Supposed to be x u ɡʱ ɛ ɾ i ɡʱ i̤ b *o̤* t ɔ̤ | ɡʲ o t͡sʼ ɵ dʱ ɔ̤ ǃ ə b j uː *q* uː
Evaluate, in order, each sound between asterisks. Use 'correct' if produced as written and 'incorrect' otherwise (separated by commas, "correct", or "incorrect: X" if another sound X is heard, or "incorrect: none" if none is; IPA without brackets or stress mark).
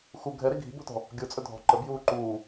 correct, incorrect: ǃ